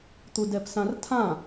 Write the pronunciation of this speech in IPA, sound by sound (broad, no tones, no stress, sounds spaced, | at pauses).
t̪ u d ɛ p s ã r tʰ ã